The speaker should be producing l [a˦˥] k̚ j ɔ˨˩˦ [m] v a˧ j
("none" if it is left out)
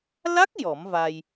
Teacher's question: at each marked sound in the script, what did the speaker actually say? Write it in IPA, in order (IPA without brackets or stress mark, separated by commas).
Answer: a˦˥, m